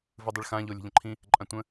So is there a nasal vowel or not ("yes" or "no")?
yes